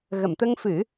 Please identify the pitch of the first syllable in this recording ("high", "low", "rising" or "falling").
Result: low